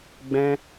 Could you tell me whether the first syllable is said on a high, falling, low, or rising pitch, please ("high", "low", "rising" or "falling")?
high